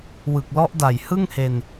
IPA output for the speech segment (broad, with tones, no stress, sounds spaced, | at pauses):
w ɯ˨˩ k̚ l ɔ˦˥ ʔ d a˨˩ j h ɯ˥˩ ŋ h e˧ n